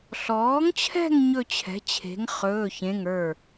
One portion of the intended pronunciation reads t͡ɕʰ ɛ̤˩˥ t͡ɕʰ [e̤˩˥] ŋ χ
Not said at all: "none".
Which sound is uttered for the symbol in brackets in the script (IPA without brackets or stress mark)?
e̤˩˥